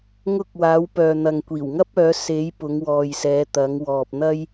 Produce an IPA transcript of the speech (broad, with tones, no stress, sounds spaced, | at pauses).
ŋ ʊ˧ k̚ w aː˨˧ w p œː˨ n̪ ɐ˨ ŋ kʷ iː˨˩ w ŋ ɐ˥ p̚ œː˨˧ s e˨˧ j p ʊ˨˧ ŋ w ɔː˨ j s ɛː˨˧ t̪ ɐ˨˧ ŋ w ɔː˨ p̚ n̪ ɐ˥ j